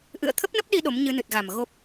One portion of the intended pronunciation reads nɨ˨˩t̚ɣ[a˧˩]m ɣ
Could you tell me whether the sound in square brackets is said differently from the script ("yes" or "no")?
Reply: yes